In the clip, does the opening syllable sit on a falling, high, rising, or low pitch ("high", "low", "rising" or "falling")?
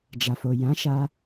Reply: low